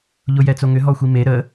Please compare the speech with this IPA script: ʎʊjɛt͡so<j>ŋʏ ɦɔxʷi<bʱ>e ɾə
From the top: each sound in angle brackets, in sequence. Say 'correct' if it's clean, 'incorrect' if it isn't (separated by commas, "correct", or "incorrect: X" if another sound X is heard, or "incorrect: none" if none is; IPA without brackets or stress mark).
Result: incorrect: none, incorrect: m